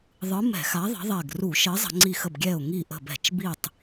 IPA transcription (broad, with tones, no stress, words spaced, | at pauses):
ðˤɯ˨˥mɛ̤˧˩˧xa˨˥ ðˤə̤˨˥ðˤɛ˧˩ɡ ru˧˩˧ ʃə˨˥ɪ̯zˤə̤˧˩˧ŋ͡ǀi˧˩xə˧˩b ɡʲɛ˧˩ʊ̯ŋi˧˩ʔə̤˧˩bɛ̤˧˩˧t͡ʃ bi˧˩tˤ